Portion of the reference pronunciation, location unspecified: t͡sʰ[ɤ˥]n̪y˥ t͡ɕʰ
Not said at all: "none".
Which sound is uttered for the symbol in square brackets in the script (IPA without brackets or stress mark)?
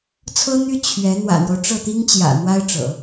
ɤ˥